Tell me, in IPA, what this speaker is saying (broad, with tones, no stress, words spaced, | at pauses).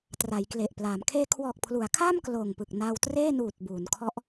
tra˩˦jkle˨˩ʔpla˩˦m kʰeː˧kʰwɔː˨˩k̚pʰlu˩˦a̯kʰaː˥˩m kloː˨˩ŋpɯ˨˩k̚naː˧w treː˥˩ nuː˨˩t̚ buː˩˦nkʰɔ˦˥ʔ